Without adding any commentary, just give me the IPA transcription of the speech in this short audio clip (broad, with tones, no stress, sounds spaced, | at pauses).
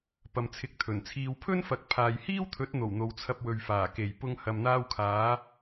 p ɐ˨ m t͡sʰ ɪ˨˥ k̚ t̪ʰ ɵ˨˩ n t͡sʰ iː˨ w pʰ ɵ˥ n f ɐ˨ k̚ pʰ aː˨ j h iː˥ w t̪ʰ ɵ˨˥ t̚ n̪ o˨˩ w n̪ o˨ w t͡sʰ ɐ˧ p̚ w ɵ˨ ɥ f aː˨˩ k e˨˩ j p ʊ˨ ŋ h ɐ˨ m n̪ aː˧ w kʰ aː˨˧